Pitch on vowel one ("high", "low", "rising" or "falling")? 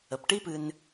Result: low